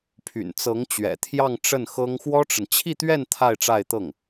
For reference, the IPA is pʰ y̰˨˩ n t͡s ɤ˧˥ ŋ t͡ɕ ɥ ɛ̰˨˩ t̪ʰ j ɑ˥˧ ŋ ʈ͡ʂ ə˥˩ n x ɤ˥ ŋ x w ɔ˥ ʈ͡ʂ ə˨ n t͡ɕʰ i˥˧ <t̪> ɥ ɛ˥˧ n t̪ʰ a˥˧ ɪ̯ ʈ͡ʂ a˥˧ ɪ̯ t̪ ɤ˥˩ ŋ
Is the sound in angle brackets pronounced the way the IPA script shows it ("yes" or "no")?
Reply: yes